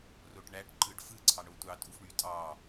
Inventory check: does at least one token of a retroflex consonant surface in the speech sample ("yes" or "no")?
yes